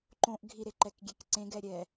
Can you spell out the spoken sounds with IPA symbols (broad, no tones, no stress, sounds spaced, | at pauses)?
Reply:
ǃ õ ʔ ɡʱ i ɾ e ǃ ɛ k ɡʲ e k ǀ ẽ ɡ ɛ ɾʲ ɛ